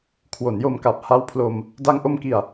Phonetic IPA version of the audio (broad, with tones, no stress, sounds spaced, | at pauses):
kʰ w o˩˦ n j o˧ m k a˨˩ p̚ h a˦˥ w pʰ l o˧ m | d a˧ ŋ ʔ o˧ m k i˨˩ a̯